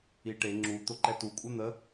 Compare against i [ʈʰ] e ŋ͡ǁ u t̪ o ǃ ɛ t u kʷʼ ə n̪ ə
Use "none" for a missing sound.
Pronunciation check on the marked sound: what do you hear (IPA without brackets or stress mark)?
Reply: ʈ